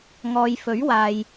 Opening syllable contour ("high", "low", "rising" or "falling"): low